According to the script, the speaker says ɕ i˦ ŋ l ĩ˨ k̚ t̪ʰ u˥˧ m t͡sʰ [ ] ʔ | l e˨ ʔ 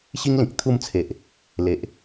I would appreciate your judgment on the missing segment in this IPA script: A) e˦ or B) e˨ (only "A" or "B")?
B